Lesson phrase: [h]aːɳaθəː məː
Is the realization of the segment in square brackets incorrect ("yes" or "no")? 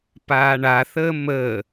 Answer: yes